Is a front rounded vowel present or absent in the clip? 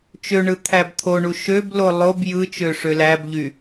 present